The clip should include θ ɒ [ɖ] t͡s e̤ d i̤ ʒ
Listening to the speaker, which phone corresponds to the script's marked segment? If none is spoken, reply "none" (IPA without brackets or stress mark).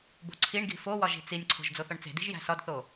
ɳ